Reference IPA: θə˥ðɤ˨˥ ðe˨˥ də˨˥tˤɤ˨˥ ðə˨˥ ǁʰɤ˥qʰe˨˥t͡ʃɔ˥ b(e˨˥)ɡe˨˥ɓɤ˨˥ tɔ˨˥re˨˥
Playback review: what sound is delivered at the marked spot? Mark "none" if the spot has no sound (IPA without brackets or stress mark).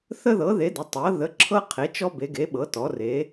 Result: e˨˥